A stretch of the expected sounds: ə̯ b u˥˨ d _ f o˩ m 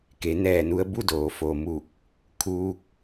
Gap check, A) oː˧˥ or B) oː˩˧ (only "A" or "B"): B